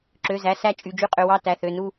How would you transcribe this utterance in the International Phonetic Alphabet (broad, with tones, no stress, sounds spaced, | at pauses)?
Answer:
ǁ ø˩˧˩ z æ˩˧˩ s æ˦˨ t͡ʃʼ y˩˧˩ d͡ʒ y˦˨ qʼ ø˩˧˩ w ɑ˦˨ t æ˩˧˩ θ ø˩˧˩ n u˦˨